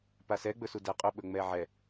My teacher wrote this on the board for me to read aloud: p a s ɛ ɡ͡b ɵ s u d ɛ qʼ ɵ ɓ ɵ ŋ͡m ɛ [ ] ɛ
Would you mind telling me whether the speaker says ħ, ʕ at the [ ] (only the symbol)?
ʕ